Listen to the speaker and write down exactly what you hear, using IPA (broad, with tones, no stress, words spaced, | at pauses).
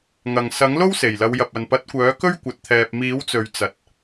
ŋɐ˨˩ŋ sɐ˨˥ŋ lo˥wse˨˩j lɐ˨˧wjɐ˨p̚ɐ˨n pɐ˨˥t̚kʷœː˨˥ kɵ˥ɥ kʷɐ˨˥t̚t̪ʰɛː˧p̚ miː˨˥wt͡sɵ˨ɥ t͡sɐ˨˥t̚